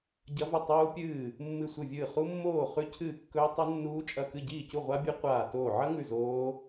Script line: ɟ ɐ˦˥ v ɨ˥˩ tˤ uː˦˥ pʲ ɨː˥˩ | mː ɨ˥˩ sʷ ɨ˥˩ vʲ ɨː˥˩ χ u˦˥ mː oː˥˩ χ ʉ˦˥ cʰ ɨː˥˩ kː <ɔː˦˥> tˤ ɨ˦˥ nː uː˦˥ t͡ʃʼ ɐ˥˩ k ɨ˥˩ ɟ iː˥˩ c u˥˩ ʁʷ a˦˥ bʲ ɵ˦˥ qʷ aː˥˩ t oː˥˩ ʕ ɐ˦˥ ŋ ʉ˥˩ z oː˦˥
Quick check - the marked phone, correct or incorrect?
incorrect